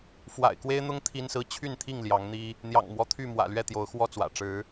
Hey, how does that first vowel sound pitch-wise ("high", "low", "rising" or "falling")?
low